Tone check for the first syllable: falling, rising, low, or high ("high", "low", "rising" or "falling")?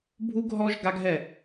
high